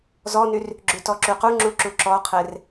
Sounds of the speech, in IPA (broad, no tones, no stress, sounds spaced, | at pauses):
z ɔ n y r | ɡ͡ǁ ʉ t ɔ ǁ y q u ŋ͡ǁ u ǁ u ǁ ɔ qʰ e r